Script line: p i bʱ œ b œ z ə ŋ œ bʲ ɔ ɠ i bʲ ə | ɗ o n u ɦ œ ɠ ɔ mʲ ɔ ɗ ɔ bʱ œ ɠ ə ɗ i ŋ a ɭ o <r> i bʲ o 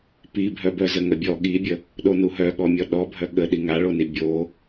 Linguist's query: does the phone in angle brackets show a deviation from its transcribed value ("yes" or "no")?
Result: yes